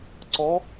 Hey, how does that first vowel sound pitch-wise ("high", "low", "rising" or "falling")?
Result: rising